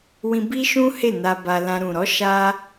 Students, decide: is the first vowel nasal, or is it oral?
nasal